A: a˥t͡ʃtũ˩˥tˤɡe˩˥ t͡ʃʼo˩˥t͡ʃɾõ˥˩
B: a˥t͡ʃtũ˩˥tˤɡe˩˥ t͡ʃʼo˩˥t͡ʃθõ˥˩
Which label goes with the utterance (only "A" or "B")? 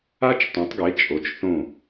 B